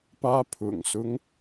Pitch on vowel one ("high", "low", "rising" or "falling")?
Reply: high